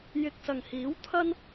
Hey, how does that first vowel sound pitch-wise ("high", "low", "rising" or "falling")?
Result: low